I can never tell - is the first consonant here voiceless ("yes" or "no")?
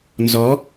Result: no